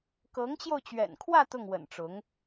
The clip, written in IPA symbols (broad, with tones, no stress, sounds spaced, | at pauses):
k ɤ˧˥ ŋ t͡ɕ j o˧ ʊ̯ t͡ɕ ɥ ɛ̰˨˩ n kʰ w ä˥˧ t̪ ʊ˥˩ ŋ w ə̰˨˩ n ʈ͡ʂ ʊ˧˥ ŋ